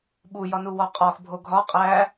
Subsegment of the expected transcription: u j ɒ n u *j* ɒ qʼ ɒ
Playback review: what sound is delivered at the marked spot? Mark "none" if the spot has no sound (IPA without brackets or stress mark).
w